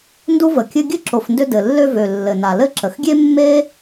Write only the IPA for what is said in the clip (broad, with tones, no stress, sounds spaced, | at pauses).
n d u˥ v ə˩ kʲ ɘ˥ ɡʲ ɘ˥ ǁ o˩ f n d ʏ˧ d ɘ˩ lː ø˧ v ø˩ lː ɘ˩ n a˩ l ɘ˥ ǁ ə˩ x ɡʲ e˥ mː e˥